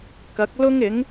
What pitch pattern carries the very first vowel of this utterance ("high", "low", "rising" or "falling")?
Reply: rising